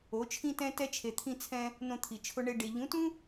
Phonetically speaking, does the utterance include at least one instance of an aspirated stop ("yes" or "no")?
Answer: yes